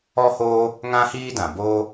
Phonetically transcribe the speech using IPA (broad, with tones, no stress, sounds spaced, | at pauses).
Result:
ɔ˦ h oː˦ | ŋ ã˦ h iː˦ d ã˨ b oː˦